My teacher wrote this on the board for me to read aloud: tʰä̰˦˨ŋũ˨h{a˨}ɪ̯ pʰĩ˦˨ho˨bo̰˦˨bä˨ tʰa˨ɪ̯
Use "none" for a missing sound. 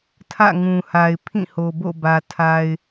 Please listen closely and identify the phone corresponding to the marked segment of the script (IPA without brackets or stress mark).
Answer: a˨